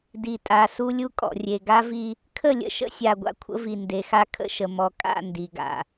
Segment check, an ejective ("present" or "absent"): present